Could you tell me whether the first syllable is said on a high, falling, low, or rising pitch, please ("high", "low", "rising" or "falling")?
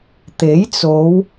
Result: rising